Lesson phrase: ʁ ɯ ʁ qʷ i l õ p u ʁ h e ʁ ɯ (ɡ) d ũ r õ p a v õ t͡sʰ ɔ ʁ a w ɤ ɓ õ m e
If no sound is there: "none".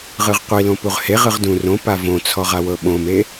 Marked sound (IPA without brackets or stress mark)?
ʁ